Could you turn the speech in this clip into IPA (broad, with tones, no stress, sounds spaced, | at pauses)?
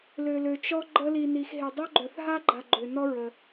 l ø˧ l ø˧ t͡ʃ ɔ˥ ɡ͡ǃ ə˥ l i˧ n i˧ x ɦ e˧ dˤ o˥ ɡ͡ǃ œ˧ θ ɦ a˥ ɡ͡ǃ a˧ ɡ͡ǃ ø˧ n ɔ˥ ɹ ə˧